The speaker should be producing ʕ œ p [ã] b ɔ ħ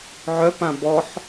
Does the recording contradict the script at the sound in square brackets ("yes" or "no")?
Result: no